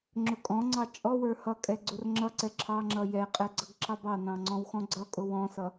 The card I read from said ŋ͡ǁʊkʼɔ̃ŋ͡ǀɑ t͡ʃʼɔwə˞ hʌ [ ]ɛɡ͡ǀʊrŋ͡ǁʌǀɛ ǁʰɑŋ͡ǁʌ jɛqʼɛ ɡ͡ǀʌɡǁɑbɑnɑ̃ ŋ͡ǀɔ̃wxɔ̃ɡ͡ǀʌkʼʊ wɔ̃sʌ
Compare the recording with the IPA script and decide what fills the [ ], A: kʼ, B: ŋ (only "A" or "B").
A